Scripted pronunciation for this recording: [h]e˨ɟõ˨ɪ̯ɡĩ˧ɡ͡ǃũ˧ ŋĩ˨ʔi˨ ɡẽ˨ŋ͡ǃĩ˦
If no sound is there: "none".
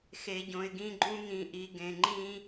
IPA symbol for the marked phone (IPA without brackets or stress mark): x